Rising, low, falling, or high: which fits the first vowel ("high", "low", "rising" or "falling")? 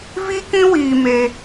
high